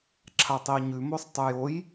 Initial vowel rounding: unrounded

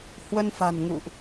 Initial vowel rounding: unrounded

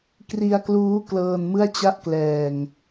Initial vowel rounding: unrounded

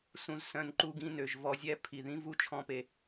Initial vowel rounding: rounded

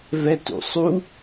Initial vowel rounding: unrounded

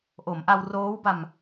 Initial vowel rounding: rounded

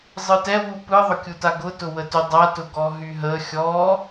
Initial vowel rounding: unrounded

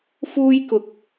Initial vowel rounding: rounded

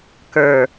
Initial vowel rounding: unrounded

